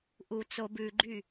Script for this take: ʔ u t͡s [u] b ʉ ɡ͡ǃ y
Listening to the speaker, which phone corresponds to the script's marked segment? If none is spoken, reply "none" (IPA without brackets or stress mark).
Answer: o